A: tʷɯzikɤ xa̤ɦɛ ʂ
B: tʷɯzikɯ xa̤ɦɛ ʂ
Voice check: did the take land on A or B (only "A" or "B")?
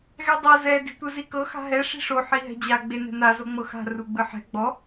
A